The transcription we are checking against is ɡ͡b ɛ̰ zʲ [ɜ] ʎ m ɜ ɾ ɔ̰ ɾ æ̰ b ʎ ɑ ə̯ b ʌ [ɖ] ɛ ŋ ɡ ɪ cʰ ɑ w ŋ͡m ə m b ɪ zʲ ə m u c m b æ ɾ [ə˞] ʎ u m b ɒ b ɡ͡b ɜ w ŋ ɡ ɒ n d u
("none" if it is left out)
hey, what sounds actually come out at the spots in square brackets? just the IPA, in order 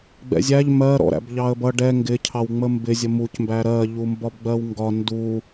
æ, ɖ, ɜ

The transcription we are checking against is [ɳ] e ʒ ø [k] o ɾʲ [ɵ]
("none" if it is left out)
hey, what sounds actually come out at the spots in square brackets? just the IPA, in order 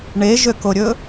ɳ, k, ɵ

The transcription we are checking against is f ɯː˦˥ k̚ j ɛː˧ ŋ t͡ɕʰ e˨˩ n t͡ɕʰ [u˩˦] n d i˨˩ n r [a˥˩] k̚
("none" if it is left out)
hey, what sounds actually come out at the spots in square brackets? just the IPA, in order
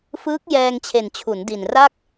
u˩˦, a˥˩

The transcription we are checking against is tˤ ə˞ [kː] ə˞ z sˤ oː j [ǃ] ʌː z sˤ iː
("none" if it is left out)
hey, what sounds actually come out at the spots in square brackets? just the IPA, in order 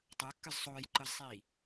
kː, ǃ

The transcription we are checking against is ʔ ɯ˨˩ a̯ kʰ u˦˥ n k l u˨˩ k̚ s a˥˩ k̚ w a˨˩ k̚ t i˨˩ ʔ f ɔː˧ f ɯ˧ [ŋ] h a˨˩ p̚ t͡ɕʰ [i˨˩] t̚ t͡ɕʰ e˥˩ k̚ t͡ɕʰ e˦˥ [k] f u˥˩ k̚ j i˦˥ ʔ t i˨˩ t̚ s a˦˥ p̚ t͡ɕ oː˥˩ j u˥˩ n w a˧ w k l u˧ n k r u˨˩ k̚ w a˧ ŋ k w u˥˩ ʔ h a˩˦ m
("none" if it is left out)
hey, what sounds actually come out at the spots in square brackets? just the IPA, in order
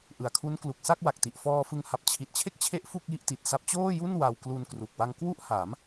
ŋ, i˨˩, ʔ

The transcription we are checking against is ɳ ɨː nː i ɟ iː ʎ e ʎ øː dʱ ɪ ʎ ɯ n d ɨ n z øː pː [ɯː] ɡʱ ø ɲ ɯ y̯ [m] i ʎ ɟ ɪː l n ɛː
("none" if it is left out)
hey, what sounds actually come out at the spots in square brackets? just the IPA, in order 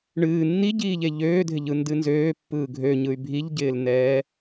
ɯː, bʱ

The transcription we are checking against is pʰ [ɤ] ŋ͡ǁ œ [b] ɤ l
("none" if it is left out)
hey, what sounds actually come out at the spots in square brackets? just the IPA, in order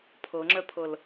ɤ, pʰ

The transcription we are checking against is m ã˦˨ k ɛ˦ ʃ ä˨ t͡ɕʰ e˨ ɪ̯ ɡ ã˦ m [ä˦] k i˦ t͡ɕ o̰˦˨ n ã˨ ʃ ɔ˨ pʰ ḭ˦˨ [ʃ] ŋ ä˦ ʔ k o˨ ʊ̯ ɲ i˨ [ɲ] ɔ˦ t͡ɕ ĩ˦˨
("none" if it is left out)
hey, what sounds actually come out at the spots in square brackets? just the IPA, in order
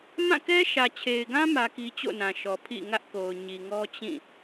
ä˦, none, ŋ

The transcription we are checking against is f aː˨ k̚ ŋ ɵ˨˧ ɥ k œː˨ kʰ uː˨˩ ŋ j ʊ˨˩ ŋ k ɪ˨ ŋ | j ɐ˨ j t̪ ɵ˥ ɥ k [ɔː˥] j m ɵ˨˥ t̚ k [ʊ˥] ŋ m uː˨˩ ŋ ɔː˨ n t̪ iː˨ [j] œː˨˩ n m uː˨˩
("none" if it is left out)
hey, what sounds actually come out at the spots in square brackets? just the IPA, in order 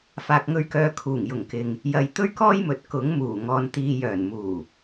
ɔː˥, ʊ˨˥, j

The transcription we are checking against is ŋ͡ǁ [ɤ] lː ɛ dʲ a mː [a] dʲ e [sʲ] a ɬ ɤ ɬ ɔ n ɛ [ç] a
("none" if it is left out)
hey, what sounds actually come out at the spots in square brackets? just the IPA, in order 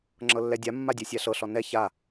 ɤ, a, sʲ, ç

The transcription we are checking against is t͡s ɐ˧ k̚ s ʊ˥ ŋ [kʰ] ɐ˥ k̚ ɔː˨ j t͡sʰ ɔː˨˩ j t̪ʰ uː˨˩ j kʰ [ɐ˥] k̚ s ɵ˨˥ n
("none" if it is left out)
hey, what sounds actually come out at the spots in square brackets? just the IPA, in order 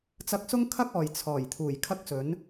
kʰ, ɐ˥

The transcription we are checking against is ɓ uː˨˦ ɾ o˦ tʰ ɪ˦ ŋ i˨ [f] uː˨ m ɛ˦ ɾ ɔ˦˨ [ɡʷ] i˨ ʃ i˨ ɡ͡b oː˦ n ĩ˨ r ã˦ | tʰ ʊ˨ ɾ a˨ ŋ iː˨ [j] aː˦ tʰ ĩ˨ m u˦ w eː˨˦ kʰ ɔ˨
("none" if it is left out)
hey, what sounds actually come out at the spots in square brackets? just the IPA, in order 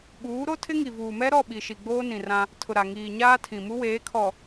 v, ɓ, ɲ

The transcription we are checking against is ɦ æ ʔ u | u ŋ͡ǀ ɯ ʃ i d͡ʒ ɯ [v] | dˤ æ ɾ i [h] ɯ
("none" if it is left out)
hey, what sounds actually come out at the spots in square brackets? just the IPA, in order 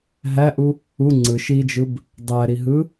b, ɦ

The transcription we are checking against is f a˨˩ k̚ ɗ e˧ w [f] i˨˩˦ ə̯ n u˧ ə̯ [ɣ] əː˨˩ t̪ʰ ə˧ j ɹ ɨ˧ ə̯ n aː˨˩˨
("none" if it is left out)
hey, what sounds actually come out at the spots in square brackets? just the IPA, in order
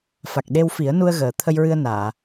f, ɣ

